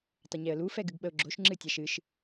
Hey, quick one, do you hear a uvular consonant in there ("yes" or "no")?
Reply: no